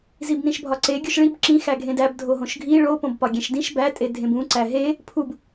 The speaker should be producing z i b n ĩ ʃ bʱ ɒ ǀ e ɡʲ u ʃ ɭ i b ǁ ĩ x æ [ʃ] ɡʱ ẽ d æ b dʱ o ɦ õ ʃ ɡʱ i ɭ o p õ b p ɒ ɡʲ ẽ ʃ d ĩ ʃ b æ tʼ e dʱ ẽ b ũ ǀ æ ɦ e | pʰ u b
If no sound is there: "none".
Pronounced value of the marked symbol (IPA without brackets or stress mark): none